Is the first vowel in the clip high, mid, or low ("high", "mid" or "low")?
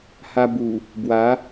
low